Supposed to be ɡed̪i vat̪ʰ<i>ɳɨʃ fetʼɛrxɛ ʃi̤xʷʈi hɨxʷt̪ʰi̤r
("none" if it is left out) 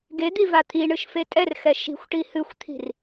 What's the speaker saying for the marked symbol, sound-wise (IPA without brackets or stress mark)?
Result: i